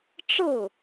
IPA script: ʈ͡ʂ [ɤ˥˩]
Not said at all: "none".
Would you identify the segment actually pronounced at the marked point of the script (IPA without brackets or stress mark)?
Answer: ɤ˥˩